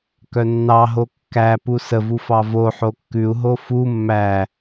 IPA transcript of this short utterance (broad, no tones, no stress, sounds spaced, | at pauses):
k œ nː ɑ ɦ o kː æ p u s ə v u f ɑ v o ħ o kː ʉ u̯ ɦ o f u mː æ